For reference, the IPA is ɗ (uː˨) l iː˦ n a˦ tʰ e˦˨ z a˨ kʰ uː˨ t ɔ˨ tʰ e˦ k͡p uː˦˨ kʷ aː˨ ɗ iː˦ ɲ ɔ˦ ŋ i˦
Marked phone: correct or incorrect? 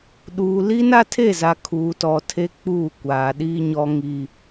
correct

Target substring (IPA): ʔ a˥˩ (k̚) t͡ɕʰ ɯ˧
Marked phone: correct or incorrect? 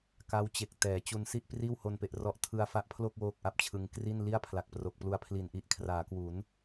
incorrect: p̚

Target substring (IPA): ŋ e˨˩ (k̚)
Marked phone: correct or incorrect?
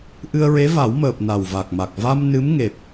incorrect: p̚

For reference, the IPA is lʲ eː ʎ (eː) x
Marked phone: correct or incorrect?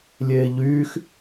incorrect: yː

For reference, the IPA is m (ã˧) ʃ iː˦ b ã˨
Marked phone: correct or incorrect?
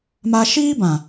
incorrect: a˧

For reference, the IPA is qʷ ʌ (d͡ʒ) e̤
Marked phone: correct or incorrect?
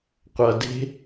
incorrect: d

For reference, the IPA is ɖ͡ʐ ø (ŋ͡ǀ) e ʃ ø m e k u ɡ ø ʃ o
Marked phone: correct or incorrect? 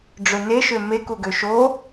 incorrect: n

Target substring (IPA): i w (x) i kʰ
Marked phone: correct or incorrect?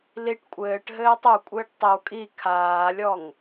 incorrect: kʼ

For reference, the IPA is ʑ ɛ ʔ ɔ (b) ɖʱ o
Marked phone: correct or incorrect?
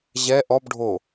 correct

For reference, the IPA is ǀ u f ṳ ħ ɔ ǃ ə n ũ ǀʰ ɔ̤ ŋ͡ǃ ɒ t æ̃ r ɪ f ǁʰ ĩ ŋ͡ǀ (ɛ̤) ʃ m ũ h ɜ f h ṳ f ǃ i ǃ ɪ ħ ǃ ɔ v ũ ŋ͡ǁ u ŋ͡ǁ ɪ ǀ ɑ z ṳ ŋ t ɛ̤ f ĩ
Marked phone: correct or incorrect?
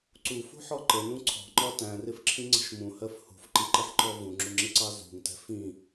incorrect: ə̤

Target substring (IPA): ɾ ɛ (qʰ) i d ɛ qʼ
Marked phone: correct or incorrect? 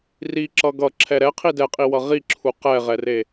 correct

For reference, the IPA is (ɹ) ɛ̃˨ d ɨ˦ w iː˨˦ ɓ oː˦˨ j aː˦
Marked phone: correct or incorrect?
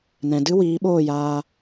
incorrect: n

